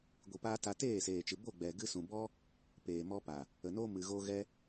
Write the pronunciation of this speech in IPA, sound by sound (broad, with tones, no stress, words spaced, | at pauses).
ɡʷi˧paː˦ ta˧teː˦˨seː˨ t͡ʃɨ˨bo˦˨ɡ͡bɛ˨ ɡɨ˧sũ˨bɔ˦ | peː˨mɔ˧pa˨ | ə˨no˧ mɨ˨ ɣo˧ ɣɛ˦